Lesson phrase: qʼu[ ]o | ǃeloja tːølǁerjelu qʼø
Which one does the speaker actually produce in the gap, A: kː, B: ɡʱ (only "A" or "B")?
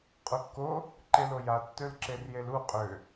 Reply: A